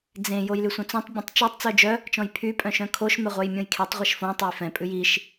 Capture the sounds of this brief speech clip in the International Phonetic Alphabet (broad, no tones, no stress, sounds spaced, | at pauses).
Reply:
d͡z ẽ j o j l y sʷ œ̃ t͡s õ tˤ bʲ ɛ̃ tˤ t͡ʃ o tˤ t͡s œ d͡ʒ œ | t͡ʃ ɔ̃ j pʰ y pʼ œ̃ ʃ œ̃ kʰ o ʃ m ɛ ʁʷ œ j mʲ õ j kʰ e tˤ ʁʷ e ʃ f õ tˤ ɛ j f ɛ̃ pʼ ʉ j i ʃ